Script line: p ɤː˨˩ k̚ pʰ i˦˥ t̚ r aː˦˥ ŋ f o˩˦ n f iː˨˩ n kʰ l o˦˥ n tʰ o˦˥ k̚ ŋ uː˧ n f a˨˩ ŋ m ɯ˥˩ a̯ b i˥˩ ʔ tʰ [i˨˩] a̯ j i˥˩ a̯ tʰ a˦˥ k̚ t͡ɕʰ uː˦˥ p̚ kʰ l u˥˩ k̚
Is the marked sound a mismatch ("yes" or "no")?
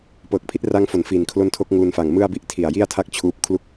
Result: no